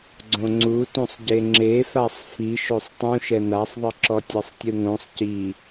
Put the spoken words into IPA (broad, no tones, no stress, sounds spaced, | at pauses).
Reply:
ɡ͡ǀ õ ŋ͡ǀ u t ũ sˤ ɟ e ŋ͡ǁ e f a sˤ f i ʃ o sˤ tˤ ũ ʃ ɛ n a sˤ ðˤ ɯ ǁ ɔ tʲ ɤ sˤ tʲ ɯ ŋ õ sˤ c i